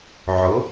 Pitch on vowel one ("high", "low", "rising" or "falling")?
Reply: rising